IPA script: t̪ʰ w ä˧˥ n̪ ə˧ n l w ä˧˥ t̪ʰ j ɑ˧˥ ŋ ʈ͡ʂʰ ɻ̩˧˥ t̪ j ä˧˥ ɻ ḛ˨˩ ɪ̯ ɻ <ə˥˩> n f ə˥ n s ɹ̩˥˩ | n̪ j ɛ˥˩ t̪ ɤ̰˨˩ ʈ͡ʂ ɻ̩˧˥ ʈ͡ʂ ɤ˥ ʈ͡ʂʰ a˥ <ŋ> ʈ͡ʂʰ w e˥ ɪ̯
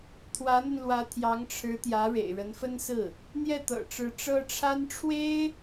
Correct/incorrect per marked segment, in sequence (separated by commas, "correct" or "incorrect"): incorrect, incorrect